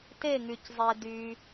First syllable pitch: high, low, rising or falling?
falling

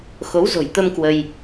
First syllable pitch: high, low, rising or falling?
rising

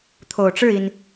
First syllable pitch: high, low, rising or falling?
low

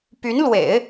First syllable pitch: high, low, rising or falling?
rising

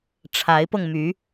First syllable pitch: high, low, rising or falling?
rising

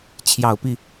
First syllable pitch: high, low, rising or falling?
low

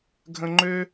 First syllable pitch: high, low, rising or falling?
low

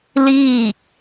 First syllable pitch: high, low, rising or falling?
falling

